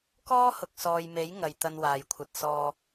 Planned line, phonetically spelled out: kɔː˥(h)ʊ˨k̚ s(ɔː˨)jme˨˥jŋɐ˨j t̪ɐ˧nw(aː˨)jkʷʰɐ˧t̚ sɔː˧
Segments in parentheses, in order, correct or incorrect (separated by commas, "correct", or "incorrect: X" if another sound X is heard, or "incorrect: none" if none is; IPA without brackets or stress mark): correct, correct, correct